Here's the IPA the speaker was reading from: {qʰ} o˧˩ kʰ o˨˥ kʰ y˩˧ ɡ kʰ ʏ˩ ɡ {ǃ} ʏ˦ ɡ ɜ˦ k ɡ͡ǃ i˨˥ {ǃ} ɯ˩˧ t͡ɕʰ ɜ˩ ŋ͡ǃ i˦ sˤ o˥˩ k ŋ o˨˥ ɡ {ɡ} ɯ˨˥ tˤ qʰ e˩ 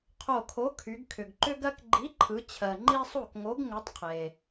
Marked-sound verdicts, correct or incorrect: correct, correct, incorrect: ǃʰ, incorrect: ŋ

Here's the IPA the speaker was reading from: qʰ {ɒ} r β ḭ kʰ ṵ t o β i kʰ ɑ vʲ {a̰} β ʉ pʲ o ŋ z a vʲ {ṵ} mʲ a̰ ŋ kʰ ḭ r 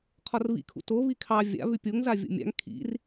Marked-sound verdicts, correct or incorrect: correct, correct, incorrect: o̰

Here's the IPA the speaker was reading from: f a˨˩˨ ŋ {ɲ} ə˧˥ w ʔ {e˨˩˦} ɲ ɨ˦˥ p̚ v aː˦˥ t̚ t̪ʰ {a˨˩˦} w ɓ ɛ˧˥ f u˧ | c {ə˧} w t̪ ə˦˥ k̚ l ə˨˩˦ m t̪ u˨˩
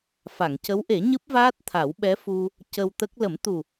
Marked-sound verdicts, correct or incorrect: incorrect: c, correct, correct, correct

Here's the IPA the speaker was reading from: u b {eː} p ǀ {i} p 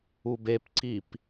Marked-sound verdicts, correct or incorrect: incorrect: e, correct

